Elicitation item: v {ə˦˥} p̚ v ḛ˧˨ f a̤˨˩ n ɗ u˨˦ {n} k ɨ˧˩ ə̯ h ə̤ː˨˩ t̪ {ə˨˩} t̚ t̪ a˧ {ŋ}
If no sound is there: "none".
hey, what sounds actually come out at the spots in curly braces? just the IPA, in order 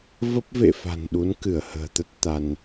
ə˦˥, n, ə˦˥, n

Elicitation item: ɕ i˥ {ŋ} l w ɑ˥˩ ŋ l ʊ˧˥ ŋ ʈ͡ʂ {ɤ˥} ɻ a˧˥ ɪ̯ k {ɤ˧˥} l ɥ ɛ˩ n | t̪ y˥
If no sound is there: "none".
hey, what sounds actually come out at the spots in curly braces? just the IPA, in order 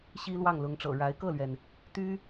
none, ɤ̰˨˩, ɤ˥˩

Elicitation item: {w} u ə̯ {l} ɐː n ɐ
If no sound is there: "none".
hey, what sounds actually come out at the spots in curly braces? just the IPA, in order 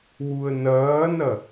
w, n

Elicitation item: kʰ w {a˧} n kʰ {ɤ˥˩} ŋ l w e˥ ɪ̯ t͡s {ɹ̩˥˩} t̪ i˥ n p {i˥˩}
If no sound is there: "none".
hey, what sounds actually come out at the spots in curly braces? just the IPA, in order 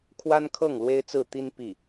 a˥, ɤ˥˩, ɹ̩˥˩, i˥˩

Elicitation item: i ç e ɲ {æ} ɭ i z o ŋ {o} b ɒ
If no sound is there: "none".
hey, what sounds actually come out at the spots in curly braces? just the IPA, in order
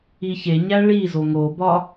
æ, o

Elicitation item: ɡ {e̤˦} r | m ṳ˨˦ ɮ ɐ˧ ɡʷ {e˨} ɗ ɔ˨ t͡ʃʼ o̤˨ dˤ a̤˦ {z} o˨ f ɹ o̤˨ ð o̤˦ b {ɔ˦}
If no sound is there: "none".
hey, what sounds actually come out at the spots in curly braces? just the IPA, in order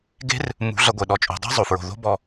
e̤˦, e˨, zˤ, ɔ˧

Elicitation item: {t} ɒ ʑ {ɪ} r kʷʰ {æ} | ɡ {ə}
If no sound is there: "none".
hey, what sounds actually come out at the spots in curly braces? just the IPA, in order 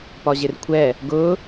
p, ɪ, ɛ, ʊ

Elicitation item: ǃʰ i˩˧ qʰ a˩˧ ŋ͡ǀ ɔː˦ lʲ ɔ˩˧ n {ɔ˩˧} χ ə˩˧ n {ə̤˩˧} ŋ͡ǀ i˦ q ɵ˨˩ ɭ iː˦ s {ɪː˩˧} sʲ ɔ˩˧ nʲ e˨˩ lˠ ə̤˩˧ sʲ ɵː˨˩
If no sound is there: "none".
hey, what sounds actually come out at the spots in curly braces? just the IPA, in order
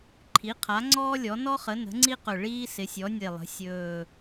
ɔ˦, ə̤˩˧, ɪ˩˧

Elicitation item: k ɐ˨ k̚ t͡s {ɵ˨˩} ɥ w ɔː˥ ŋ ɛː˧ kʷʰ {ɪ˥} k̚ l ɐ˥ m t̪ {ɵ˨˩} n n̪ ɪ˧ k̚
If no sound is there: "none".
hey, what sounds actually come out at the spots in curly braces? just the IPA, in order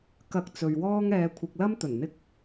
ɵ˨, ɪ˨, ɵ˨˩

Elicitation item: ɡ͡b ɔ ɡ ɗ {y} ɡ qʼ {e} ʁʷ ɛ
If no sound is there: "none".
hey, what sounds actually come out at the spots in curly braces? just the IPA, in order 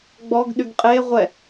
y, e

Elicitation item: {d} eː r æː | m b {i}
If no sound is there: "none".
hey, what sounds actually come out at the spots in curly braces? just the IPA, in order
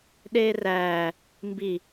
ɗ, i

